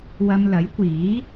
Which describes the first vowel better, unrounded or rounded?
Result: unrounded